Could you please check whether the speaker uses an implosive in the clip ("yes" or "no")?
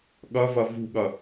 yes